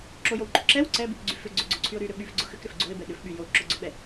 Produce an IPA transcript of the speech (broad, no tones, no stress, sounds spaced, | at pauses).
ǁ o j o w ǃ ʊ ǁ ɛ w ǀ ɛ b y k ɡ͡ǀ y f ʏ ɡ͡ǀ ʏ ɡ͡ǀ o ǀʰ y ʊ̯ ɾ y ɾ ʏ ɓ y f ɡ͡ǀ ʊ x ʏ k ɾ ʏ f ɡ͡ǀ o ɪ̯ b ɛ ɗ ʏ f ɓ y j o ǁ ʊ ɡ͡ǀ ʊ ɓ ɛ